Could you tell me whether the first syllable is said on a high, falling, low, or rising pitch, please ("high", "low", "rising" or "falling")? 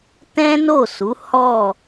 high